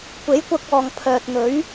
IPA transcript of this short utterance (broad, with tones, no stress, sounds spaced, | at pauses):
kʷ e˨˥ j kʷ ɐ˧ k̚ ɔː˨ ŋ pʰ œː˨ t̚ n̪ ɵ˨˥ ɥ